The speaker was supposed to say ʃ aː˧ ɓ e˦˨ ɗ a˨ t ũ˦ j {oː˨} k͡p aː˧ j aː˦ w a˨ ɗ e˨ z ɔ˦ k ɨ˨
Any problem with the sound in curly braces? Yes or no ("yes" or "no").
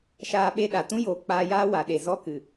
no